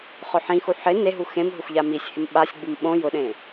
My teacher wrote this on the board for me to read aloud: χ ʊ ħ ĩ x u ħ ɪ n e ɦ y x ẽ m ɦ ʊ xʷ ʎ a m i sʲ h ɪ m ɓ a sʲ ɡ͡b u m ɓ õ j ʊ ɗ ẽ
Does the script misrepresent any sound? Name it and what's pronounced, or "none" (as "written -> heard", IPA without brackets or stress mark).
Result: y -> u